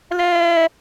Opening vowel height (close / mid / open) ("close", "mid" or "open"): mid